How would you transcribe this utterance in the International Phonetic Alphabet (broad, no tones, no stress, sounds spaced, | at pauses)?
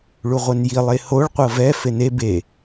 ɭ u ʁʷ ɛ n j i lˠ e h o ɭ qʷ ɤ v ɛ f e n e b e